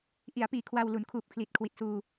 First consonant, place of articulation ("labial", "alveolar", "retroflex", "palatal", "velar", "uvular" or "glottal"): glottal